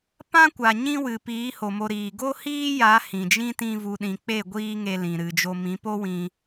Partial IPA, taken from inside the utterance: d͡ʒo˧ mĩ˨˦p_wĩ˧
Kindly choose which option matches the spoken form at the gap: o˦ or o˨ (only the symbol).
o˦